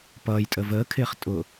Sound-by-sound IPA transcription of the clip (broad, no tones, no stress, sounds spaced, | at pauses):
p ʌː j tʼ ə v əː kʰ ɪː χ tʼ ʊ